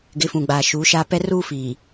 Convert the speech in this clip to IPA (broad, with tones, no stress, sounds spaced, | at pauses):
ɡ ɪ˨˦ f ũ˨ ɡ͡b aː˨ ʃ uː˨˦ ʃ aː˦ p ɛ˦ r uː˦ f iː˨